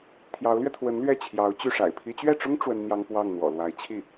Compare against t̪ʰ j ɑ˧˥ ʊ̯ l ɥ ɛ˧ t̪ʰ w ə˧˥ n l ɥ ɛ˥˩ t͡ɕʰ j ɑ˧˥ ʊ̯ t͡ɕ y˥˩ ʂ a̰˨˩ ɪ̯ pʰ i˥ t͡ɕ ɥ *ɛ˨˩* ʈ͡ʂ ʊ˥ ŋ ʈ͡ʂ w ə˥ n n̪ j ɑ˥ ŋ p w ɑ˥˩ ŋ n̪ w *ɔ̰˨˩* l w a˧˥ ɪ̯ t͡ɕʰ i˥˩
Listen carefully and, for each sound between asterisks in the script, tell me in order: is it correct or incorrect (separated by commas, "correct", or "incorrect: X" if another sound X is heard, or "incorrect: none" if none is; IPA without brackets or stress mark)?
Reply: incorrect: ɛ˥˩, correct